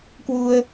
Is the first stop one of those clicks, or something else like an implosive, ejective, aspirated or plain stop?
plain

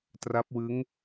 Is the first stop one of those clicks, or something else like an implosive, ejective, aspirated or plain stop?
plain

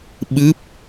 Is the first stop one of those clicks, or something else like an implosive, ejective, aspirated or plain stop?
implosive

